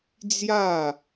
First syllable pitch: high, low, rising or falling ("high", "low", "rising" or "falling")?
falling